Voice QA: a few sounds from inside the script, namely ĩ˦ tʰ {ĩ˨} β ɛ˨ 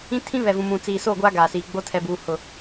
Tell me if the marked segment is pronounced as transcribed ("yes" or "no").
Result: no